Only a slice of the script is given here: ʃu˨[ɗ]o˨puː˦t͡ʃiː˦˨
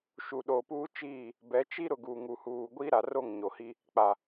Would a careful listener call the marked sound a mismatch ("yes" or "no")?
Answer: no